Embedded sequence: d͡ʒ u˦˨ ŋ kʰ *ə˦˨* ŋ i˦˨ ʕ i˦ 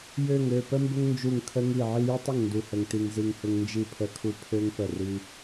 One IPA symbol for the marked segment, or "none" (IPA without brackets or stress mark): ə˦